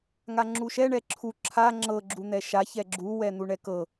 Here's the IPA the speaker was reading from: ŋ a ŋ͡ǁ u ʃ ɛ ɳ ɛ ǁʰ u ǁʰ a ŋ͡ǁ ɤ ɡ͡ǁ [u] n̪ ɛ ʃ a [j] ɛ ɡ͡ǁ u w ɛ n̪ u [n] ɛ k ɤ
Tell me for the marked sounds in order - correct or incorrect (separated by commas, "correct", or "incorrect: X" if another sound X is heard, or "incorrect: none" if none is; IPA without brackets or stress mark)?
correct, incorrect: ç, incorrect: ɳ